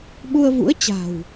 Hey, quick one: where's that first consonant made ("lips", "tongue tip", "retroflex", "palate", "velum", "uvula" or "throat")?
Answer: lips